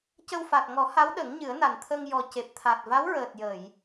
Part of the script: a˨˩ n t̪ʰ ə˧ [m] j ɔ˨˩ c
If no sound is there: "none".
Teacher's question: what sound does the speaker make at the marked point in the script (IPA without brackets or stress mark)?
ŋ